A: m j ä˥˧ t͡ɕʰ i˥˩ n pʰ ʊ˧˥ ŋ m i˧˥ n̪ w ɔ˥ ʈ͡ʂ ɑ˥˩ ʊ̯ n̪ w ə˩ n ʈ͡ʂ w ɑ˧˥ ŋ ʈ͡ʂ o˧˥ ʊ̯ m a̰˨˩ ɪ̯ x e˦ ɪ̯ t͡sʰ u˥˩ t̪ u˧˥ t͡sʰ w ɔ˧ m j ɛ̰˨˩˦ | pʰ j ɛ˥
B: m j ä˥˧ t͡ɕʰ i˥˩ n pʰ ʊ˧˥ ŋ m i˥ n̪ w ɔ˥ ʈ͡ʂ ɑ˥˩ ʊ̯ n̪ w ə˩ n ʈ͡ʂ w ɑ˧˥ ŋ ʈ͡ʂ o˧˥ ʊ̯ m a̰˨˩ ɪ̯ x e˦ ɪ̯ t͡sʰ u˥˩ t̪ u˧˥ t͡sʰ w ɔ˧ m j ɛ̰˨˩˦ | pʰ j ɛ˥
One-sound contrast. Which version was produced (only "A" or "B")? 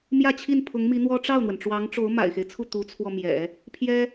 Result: A